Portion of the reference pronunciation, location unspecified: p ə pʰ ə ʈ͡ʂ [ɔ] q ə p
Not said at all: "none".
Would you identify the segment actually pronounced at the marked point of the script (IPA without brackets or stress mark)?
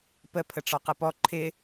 ɔ